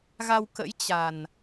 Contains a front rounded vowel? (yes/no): no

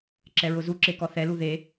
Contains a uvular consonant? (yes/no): no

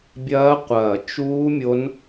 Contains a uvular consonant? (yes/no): yes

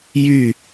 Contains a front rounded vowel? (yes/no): yes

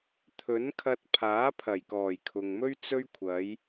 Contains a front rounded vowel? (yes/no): no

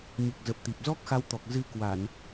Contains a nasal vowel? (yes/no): no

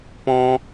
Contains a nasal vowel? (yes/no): yes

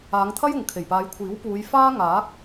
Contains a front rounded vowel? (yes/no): no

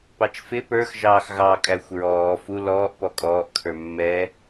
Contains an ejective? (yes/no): yes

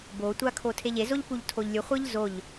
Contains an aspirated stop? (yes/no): yes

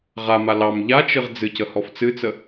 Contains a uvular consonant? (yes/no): yes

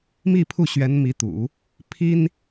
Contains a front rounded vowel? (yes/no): no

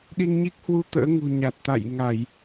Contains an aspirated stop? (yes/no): no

